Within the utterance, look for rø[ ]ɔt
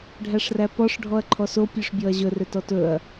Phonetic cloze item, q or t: t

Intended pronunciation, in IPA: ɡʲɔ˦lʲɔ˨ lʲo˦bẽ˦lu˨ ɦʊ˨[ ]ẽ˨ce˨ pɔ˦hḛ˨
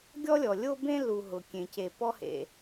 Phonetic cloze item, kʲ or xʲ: kʲ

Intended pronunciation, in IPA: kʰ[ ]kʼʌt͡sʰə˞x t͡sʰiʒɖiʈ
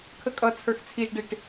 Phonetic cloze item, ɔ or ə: ə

